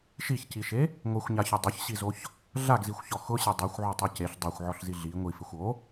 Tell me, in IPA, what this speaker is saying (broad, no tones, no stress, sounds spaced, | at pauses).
ʃ i ç c i ʃ e | ŋʷ e xʷ ɲ a ç ʊ dˤ ʊ ç ɕ i z o ç | ɮ a ɡ z i xʷ ç ɔ x ʊ ɕ e dˤ o xʷ ʕ o tˤ i c e ɬ dˤ a xʷ ʕ ɔ ɬ z i ɮ i ŋʷ i f ɪ xʷ o